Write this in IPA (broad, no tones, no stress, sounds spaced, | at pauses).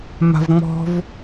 m a̤ v ŋ͡m ɔ̤ v